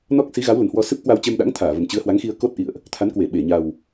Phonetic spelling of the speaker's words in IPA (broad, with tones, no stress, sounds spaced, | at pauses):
n ɔ˦˥ k̚ s i˨˦ ɣ a˨˦ w l ə˨˩ n h w ɔ˧ s ɨ˦˥ p̚ k w a˧ w t͡ɕ e˧ m ɗ a̰˧˥ ŋ t̪ʰ aː˧˩ v ə˨˩ m t͡ɕ ɨ˨˦ ə̯ h w a˨˦ ŋ x i˧ ə̯ k o˦˥ t̚ ʔ ḭ˧˨ ə̯ ʔ | t̪ʰ a˨˦ n k w e˧˩ ɓ e˧˩ ɲ a˨˩ w